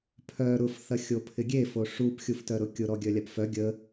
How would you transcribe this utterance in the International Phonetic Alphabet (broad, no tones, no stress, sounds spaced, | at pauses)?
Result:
pʰ œ ɾ ʊ f θ ɐ xʲ o pʰ ɪ ɡʲ e f o ʂ u p xʲ u f t œ ɾ ʊ kʲ ʊ ɾ ɔ ɡʲ œ lʲ a p f œ ɡʲ ə